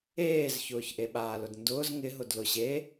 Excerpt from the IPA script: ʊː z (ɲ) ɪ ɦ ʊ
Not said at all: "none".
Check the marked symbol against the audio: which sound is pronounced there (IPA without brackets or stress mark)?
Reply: ŋ